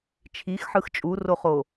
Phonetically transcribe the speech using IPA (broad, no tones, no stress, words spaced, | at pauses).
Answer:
t͡ʃʰixħɯx t͡ʃʼuroχo